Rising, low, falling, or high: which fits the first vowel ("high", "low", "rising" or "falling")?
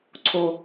low